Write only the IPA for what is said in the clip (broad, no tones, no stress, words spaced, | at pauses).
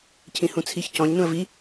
cʰĩhũt͡sʰiç cɔ̃ɲ nũə̯vi